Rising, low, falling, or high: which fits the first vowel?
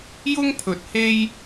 high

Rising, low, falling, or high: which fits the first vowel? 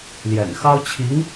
low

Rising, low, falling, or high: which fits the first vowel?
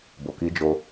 low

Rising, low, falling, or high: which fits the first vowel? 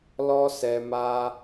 high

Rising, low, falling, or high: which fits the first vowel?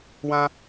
high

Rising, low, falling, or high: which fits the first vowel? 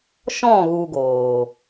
falling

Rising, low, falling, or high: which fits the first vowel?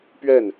falling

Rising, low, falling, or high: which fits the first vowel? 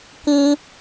high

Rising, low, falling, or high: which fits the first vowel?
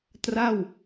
falling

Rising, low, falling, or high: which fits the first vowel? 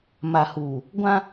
low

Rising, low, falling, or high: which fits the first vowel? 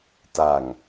low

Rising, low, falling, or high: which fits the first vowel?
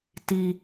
low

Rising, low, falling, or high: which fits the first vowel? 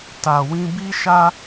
low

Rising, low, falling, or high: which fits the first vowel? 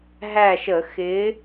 falling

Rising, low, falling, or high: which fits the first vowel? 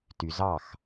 low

